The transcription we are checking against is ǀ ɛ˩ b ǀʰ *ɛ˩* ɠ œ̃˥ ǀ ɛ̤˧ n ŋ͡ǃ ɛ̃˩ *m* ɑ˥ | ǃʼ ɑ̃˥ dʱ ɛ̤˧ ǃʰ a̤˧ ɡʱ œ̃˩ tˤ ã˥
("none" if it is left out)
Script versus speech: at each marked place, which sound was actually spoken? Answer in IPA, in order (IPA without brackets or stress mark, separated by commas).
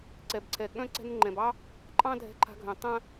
ɛ˩, b